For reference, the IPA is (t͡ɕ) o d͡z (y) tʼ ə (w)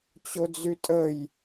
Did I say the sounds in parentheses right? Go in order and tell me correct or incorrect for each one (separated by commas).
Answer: correct, correct, incorrect